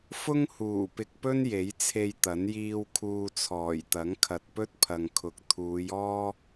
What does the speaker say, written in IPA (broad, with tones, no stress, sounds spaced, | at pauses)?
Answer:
f ʊ˥ ŋ h uː˨˩ p ɪ˨ k̚ p ɵ˥ n j e˨˥ j t͡sʰ e˧ j t̪ ɐ˨˥ n j iː˧ w kʰ uː˧ t͡sʰ ɔː˨˩ j t̪ ɐ˨˥ ŋ kʰ ɐ˨ t̚ p ɵ˥ t̚ pʰ ɐ˨ ŋ kʰ ʊ˨ k̚ t̪ʰ uː˨˧ j ɔː˥